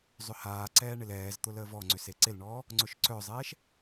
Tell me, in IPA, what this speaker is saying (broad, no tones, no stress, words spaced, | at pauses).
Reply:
zˤʏhaːǀɛː ɳɪlɛːzt̪ʊl əːvɔŋ͡ǀʏ seǀɪlɳɔː | ŋ͡ǀʊʃǀœzˤɛːʃ